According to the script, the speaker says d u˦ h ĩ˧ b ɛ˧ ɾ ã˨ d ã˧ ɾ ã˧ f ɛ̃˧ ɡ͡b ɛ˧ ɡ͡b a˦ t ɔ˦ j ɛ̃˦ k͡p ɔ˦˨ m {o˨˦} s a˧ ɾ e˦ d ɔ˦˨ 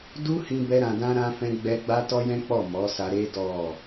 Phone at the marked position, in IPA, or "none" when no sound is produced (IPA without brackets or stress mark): ɔ˨˦